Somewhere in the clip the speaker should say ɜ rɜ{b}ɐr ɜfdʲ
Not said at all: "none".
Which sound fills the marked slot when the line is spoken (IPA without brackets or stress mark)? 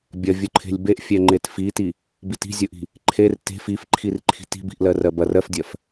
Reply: b